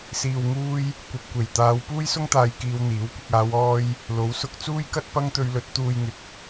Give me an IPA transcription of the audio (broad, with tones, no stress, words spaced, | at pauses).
siː˨wŋuː˧j | kʷɐ˨p̚kʷe˨˩jt̪aː˨˧w puː˥jsʊ˥ŋt̪aː˨˧j kiː˧wn̪iː˨˥w kʷɪ˨k̚aː˨˧wɔː˧j | lo˨˥wsʊ˧k̚ t͡suː˥jkɐ˥t̚ pɐ˥ŋt̪ɵ˧ɥlɵ˨˥t̚ t̪uː˧j ŋɪ˨k̚